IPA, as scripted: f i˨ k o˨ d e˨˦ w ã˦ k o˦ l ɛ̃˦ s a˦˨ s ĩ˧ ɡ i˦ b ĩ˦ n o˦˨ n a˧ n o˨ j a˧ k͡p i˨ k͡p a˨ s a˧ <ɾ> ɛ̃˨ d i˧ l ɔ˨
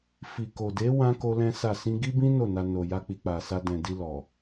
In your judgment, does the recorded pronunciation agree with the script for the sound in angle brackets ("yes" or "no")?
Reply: no